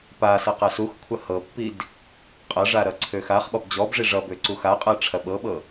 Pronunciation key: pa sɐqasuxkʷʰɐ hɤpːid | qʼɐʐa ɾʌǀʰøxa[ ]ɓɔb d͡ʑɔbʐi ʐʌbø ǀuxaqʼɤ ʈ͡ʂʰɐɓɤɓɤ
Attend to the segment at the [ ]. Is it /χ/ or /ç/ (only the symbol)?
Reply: χ